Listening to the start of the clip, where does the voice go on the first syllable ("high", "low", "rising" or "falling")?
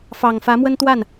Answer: low